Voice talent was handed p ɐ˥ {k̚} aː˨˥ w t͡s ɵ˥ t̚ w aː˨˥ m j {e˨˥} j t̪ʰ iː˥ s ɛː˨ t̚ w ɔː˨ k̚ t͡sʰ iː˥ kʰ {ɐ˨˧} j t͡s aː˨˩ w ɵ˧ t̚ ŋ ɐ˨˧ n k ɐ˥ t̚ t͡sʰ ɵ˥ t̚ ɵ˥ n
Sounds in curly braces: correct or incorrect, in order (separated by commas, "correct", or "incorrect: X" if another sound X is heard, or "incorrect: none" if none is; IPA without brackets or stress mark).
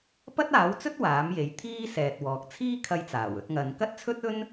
incorrect: t̚, correct, incorrect: ɐ˧